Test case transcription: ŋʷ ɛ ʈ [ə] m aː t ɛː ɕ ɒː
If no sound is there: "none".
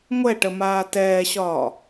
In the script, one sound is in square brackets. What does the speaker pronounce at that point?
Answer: ə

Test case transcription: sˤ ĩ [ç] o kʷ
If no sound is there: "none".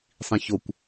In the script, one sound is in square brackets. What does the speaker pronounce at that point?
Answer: ç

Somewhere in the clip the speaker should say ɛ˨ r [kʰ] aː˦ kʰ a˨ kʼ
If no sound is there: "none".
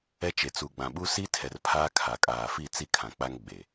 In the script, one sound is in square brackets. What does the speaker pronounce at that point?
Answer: pʰ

